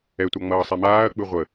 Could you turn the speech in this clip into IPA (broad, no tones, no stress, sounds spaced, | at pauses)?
ɛ tʷ a ŋ͡m ʌː sˤ ɛ m aː ɐ̯ k͡p ɯ ʁʷ ə